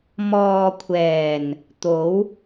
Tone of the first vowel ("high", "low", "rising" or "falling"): low